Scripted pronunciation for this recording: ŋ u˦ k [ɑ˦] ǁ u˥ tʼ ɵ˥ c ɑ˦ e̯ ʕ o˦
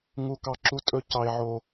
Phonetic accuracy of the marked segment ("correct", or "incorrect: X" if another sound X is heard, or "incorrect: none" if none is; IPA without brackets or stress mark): correct